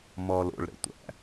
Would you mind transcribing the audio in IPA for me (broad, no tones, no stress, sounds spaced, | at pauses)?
m ɔː l o̰ ɭ ɾ ə̰ tʷ æ̰